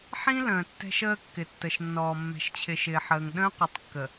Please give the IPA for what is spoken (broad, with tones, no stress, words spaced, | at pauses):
ħĩ˦ lə̃ː˨tːɛ̤˦ʃəː˦ kːɪ˨tːə˨ʃnːɔː˨ mːɛ̤˨ʃt͡ɕʰɪ˨ ʃɪː˨ħəː˨ŋ ɗə̃ː˦qʷɪ˨˦tˤkːə˨